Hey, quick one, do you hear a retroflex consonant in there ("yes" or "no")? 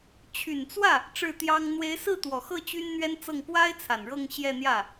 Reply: yes